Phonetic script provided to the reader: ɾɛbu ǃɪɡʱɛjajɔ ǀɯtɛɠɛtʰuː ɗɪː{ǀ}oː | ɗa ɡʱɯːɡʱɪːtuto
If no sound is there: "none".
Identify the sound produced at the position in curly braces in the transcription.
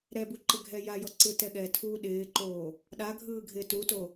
ǃ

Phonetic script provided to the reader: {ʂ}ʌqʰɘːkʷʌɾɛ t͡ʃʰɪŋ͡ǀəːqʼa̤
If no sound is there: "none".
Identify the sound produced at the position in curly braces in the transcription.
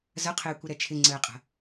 z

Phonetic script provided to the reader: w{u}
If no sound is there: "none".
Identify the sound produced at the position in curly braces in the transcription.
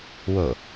o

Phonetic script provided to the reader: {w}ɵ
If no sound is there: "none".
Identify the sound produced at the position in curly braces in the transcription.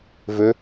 v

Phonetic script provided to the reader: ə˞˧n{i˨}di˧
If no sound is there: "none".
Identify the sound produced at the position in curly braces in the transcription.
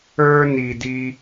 i˨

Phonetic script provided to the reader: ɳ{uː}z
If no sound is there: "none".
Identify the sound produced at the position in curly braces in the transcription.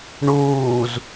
uː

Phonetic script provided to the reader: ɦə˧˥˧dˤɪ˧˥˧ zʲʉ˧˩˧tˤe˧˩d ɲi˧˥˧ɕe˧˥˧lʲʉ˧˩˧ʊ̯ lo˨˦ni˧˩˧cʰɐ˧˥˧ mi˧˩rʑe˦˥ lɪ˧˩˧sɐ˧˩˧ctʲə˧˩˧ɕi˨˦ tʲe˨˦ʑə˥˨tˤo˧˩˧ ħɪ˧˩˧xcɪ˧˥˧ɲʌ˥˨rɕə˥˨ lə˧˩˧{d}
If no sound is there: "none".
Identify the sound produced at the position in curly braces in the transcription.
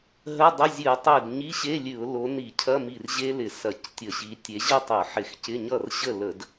d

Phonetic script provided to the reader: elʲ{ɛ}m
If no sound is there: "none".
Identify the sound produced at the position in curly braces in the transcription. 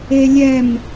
ɛ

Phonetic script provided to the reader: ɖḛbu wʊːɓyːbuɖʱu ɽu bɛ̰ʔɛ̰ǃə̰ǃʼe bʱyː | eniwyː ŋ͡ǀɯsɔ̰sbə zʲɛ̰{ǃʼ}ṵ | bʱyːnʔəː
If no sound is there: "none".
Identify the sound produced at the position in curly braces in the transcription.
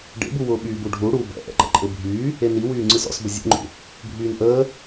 ŋ͡ǃ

